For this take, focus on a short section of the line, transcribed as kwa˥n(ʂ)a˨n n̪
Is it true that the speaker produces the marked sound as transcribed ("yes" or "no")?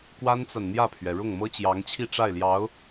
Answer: no